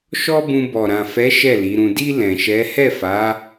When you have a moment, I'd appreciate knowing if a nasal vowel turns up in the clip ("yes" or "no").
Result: yes